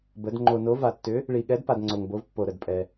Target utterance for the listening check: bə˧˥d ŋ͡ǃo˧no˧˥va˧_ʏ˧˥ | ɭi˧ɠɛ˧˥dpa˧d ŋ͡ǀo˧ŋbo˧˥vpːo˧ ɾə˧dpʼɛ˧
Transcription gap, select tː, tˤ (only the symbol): tː